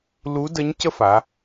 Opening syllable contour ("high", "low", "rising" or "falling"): rising